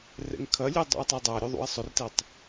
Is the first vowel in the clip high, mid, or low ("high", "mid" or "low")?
mid